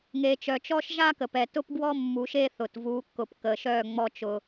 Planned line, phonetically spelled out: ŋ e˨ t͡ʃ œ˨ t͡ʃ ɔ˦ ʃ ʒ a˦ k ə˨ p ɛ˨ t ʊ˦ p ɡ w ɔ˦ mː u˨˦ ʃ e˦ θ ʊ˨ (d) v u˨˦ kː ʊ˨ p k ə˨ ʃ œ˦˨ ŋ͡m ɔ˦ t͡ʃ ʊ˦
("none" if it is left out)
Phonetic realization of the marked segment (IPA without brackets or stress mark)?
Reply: t